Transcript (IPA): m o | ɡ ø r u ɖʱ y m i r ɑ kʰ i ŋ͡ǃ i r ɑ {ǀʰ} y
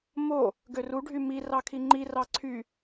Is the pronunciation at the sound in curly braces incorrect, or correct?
correct